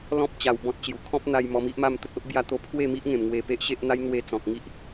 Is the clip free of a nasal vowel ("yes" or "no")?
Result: no